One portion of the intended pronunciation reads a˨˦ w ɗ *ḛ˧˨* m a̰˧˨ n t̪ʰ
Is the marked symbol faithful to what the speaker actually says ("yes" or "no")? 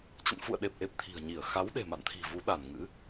no